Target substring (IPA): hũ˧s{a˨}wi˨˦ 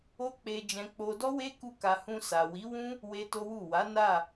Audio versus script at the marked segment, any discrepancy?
no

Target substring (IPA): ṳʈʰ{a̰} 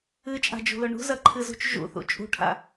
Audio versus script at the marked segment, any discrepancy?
no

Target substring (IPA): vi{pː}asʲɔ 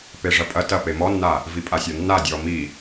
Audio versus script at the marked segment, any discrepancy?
yes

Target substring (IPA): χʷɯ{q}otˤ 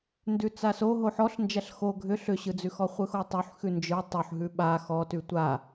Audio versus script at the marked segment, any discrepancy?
yes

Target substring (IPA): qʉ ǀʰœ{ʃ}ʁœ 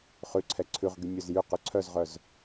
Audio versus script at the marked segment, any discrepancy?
yes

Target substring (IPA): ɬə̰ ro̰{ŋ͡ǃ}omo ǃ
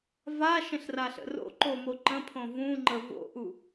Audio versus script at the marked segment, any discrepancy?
yes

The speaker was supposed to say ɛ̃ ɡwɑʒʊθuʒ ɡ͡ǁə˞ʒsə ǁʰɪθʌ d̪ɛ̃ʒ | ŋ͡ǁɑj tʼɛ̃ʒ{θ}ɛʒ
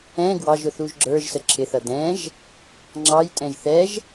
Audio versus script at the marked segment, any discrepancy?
no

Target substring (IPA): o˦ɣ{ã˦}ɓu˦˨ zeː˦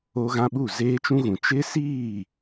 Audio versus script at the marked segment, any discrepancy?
no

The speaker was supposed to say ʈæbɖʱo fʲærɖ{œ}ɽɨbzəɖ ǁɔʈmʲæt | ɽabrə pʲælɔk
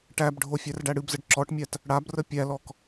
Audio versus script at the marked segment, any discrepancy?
yes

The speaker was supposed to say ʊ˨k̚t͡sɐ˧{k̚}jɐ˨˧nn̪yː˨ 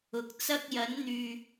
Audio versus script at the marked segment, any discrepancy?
no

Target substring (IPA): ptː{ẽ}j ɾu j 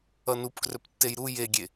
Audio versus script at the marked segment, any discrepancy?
yes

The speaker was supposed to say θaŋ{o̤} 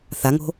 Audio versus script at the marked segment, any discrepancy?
no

